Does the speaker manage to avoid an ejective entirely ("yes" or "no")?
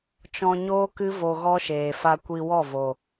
yes